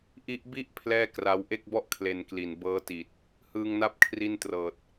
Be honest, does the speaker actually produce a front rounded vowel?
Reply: no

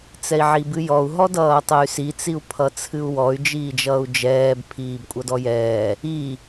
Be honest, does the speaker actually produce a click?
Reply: no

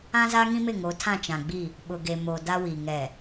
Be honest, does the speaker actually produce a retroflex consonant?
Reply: no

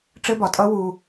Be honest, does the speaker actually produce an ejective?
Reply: yes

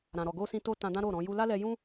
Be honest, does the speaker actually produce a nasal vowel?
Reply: yes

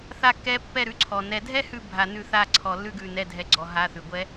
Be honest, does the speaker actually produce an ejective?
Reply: no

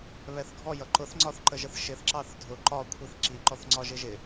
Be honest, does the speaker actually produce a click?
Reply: yes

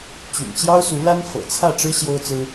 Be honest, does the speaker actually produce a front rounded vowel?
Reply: yes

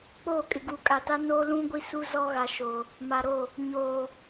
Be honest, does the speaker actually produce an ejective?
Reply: yes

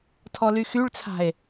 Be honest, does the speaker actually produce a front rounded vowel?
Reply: yes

